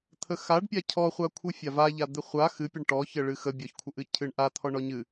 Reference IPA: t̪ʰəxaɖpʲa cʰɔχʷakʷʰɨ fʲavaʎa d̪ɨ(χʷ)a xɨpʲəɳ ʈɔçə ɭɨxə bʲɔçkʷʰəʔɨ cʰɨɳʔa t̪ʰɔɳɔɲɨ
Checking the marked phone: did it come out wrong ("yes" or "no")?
no